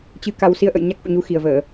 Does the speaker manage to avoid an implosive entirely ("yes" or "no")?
yes